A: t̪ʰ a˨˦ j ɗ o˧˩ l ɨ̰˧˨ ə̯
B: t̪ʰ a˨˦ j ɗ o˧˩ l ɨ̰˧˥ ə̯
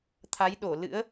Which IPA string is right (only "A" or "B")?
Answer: B